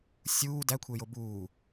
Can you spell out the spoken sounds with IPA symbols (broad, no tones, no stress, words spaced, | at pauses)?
sʲuː dækʷʰejo buː